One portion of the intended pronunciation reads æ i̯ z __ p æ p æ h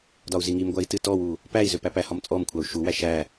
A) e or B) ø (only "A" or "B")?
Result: B